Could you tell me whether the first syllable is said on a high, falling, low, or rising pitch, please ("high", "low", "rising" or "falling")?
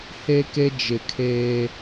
high